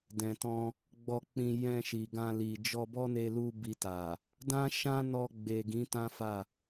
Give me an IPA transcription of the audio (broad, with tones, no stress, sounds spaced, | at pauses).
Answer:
d ɛ̃˨ t ɔ̃˧ | ɡ͡b ɔ˧ k͡p ĩ˧ j ɛ̃˧ ʃ i˨ ɡ ã˧ l i˨ d͡ʒ ɔ˧ b ɔ˦ n e˧ l u˧ b i˧ t a˨ | d ã˦ ʃ ã˦ n ɔ˧ ɡ͡b e˨ ɡ ĩ˨˦ t ã˦ f a˦˨